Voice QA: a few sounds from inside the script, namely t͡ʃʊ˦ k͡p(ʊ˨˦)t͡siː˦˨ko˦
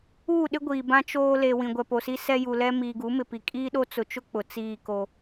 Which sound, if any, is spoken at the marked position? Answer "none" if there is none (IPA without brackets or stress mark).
ʊ˨